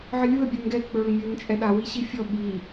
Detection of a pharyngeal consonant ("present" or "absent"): present